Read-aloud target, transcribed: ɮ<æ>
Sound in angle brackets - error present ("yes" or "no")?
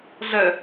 yes